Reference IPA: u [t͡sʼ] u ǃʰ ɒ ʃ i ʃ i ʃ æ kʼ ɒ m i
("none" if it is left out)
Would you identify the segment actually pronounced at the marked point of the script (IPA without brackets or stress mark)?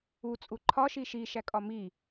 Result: t͡sʼ